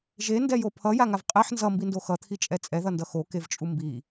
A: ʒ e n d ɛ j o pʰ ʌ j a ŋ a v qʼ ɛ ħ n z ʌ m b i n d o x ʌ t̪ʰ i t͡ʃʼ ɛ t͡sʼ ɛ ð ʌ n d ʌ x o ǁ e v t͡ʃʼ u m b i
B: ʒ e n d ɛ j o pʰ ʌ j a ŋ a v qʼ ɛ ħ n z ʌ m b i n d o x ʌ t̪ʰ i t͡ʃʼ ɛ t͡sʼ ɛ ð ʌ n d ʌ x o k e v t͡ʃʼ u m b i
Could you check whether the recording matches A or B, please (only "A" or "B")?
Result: B